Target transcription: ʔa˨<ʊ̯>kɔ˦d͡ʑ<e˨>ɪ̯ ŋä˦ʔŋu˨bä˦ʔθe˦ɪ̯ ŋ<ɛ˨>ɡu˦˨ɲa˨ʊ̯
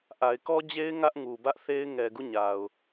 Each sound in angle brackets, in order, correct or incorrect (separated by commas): incorrect, incorrect, correct